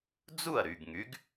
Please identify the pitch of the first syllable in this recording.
falling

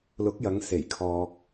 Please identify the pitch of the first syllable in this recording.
rising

